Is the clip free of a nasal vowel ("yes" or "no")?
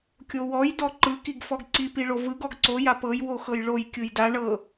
yes